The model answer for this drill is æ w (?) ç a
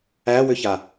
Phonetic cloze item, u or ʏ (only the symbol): ʏ